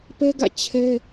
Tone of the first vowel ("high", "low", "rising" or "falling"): high